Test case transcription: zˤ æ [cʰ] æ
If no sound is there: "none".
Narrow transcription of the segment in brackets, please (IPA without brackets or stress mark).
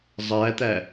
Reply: t̪